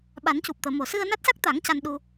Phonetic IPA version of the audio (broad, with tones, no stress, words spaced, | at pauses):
ɓa˨˩˦ncu˨˩p̚t̪əː˨˩˨ mo˨˩ sɨ˧ə̯na˦˥t̚sa˦˥k̚t̪a˨˩˦ŋ ca˧nɗu˧